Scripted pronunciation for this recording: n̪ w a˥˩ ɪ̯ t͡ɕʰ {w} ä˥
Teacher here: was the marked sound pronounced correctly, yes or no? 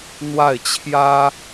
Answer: no